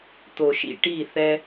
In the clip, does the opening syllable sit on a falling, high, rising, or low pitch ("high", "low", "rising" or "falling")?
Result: low